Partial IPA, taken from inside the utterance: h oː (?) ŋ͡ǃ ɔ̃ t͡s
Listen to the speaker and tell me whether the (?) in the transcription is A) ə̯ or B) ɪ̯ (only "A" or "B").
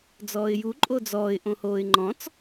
B